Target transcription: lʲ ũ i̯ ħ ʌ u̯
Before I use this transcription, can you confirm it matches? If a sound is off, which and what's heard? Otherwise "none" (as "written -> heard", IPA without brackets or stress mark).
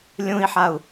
ʌ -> a